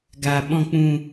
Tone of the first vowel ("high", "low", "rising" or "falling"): low